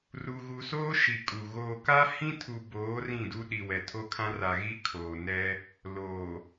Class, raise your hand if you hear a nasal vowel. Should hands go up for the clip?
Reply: yes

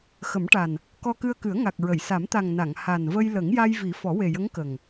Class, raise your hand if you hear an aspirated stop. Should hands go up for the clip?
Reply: no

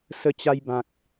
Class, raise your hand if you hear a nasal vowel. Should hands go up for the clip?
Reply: yes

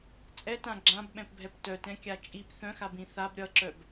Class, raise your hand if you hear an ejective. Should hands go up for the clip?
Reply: yes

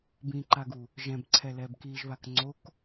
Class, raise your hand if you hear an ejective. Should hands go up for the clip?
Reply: no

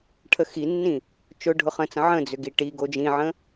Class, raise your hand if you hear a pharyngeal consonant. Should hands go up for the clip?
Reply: yes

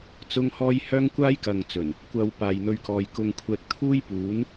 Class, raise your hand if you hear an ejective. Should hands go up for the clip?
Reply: no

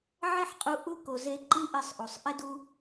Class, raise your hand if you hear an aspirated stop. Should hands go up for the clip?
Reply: no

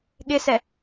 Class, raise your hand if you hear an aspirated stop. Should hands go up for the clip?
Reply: no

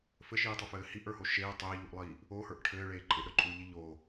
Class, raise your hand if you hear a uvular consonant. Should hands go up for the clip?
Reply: no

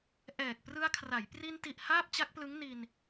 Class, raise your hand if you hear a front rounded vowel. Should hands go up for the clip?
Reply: no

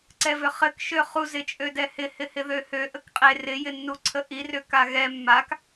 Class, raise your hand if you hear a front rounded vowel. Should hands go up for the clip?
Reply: yes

